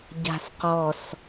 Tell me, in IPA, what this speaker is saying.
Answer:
ɟ a̤ s q ɔ s

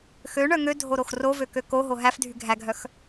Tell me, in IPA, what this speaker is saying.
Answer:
x ø ɳ œ ŋ ø dʱ o ɾ o x r o v ø k ø k o ɦ o ɦ æ f dʱ y ɡʱ æ ɡʱ œ x

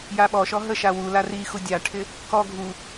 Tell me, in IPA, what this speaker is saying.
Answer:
j a ɓ ɔ ʃ ɔ ɦ ə ʃ a w u l a r i x u dʲ a ʈʰ ɪ | k ɔ ɡʱ u

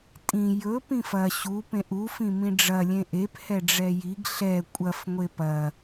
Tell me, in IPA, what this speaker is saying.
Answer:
tʼ ĩ j ɵ p ĩ f ɐ ɕ u p ẽ ʔ u f ĩ m ĩ ɖ͡ʐ ɐ lʲ ẽ ʔ e p h ɛ ɖ͡ʐ ɛ j i ɡ ɬ ɛ kʷʼ ɐ f ŋʷ e p ɐ

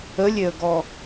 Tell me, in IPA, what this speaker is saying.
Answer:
ə lʲ e ə̯ ɡ ɔ

